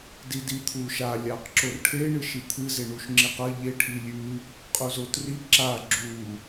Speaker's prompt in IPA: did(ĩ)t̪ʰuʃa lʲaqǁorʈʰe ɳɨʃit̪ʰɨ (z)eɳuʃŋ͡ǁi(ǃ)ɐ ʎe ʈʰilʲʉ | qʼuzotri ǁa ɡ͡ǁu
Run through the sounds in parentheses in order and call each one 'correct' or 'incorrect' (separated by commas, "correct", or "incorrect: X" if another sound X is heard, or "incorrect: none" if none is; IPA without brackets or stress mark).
incorrect: i, correct, incorrect: q